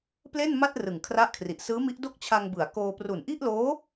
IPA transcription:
p l e˥˩ n m a˥˩ t̚ r ɯ˨˩ ŋ kʰ r a˦˥ ʔ kʰ r i˨˩ ʔ s ɯː˦˥ m i˦˥ ʔ d o˥˩ k̚ t͡ɕʰ a˧ ŋ b ɯ˩˦ a̯ k oː˧ p r u˨˩ n ʔ i˥˩ ʔ l oː˦˥

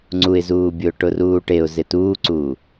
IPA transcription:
ŋ͡ǀ u ɪ̯ z uː bʲ ʊː ʈ ʊ r uː ʈ e ʊ̯ z ɪ t uː ǀ uː

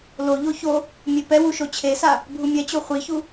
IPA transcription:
l o ʎ o ç o | mʲ e p ɛ w u ʃ o t͡ɕʰ e s a | bʱ u mʲ ɛ t͡ɕ o χʷ i ç u

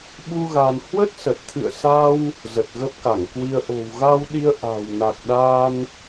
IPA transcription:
ɓ u˧ ɣ a˧ n h w ə˦˥ t̚ s ə˨˩ t̚ t̪ʰ ɨ̰˧˨ ə̯ s a˧ w | z ə˨˩ t̚ ɣ ə˦˥ p̚ k a˧˩ ŋ k w i˧ ə̯ ʔ o̤˨˩ w ɣ a˧ w ɗ i˧ ə̯ ʔ a̤˨˩ w n a˨˩ k̚ ɗ a˧ n

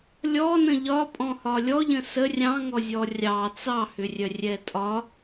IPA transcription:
lʲ ɔ n ə̃ ʎ ɒ pʼ ɔ̃ h ɒ lʲ ɔ ʎ ə̃ s ə rʲ ɑ̃ ŋ ɔ zʲ ɔ rʲ ɑ t͡s ɑ h ʏ rʲ œ rʲ ɛ tʼ ɒ

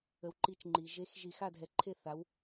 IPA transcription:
ə˩ w ǃ i˨˩˦ t͡ʃ ŋ͡ǃ i˩ ʒ e˨˦ x ʒ i˧˩ x a˥˨ dʱ ɛ˨˦ ǃʰ e˥˨ θ a˨˦ w

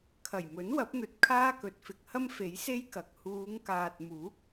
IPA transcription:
kʰ ɐ˨˩ j m ɵ˨˥ n w ɐ˨˥ p̚ n̪ ɵ˨ t̚ kʰ aː˥ k ɵ˨˥ t̚ f ɪ˨˥ k̚ h ɐ˥ m f e˨˥ j s e˥ j k ɐ˨ k̚ h uː˨˧ ŋ k aː˨ t̚ m uː˨˥ k̚

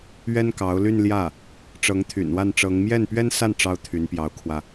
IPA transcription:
ɥ ɛ˥ n k ɑ˧˥ ʊ̯ l y˥˧ n l j ä˥˩ | ʈ͡ʂ ɤ˧˥ ŋ t̪ʰ y̰˨˩ n w a˥˩ n ʈ͡ʂ ɤ˧˥ ŋ m j ɛ˥˩ n p ɥ ɛ˥ n s a˥˩ n ʈ͡ʂ ɑ˥ ʊ̯ t̪ʰ y˧˥ n p j ɑ˧˥ ʊ̯ kʰ w ä˧

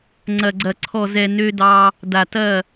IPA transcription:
ŋ͡ǀ ɐ˨ ɡ͡ǀ ɐ˨ ǀʰ ɔ˨ z ɛ˨ n ø˦ d ɑ˦ | d a˨ t ɐ˦˨

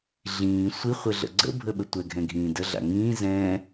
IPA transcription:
ɮ ĩː sʷ i χʷ ɘ ɮ ə̰ ɡ͡ǀ ə̰ bʱ ə ɓ ə tʷ ɛ ɡʱ ɛ̃ ɡʱ ĩː d ə ɮ a̰ ŋ ĩː z ɛ̃ː

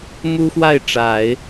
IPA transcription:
m u˥ x w a˥˩ ɪ̯ ʈ͡ʂ a˨˩˦ ɪ̯

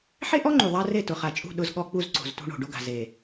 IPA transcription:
ħ e˦ ʔ ɔ˦ ŋ͡ǃ u˨ ðˤ a˦ r e˦˨ t ʊ˨ χ a˨ t͡ʃʼ ṳ˦˨ ɗ ʊ˦ z ɠ ɔ˦ k͡p u˦ z ǀ o̤˨ z t ṳ˦ ɳ o̤˨ ɖ o˦ ɡ a̤˨ z e˨

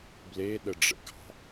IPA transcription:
b l e ɗ ə ɖ͡ʐ ə̰ ɡ ɑ̤

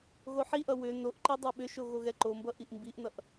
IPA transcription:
ɣ o ħ i ʔ ʌ w ʏ n o ʔ ǃ i dˤ o ɓ ʏ ʃ o ɣ o ɣ ɛ ǃ o m b ʌ ʔ i ʔ m b i ʔ n ʌ ʔ

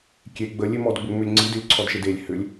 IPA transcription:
kʲ e ɡ͡b ə lʲ e m ɔ d ɡ͡b ʏ ŋ͡m ʏ lʲ ŋ͡ǀ i d ʏ lʲ ǀʰ ɔ d ʃ e d e lʲ h ʏ lʲ

